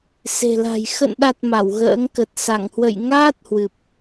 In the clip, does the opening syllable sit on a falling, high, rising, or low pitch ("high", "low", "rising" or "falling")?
low